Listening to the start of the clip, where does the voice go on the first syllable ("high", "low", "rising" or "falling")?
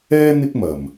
high